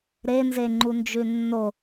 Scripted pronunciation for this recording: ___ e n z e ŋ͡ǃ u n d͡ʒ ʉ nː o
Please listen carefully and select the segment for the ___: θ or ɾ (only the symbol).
ɾ